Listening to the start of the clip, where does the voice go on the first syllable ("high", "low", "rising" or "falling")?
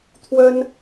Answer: high